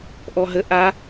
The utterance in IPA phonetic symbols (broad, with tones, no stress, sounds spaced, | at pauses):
ʔ ɔ˧ ɦ ə˧˥˧ ʔ a˦˥